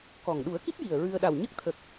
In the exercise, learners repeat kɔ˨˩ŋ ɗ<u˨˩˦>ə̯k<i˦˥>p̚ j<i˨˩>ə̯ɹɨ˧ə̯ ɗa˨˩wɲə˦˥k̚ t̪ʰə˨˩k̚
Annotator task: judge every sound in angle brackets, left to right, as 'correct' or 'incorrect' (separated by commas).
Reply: correct, correct, correct